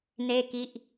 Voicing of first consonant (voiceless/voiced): voiced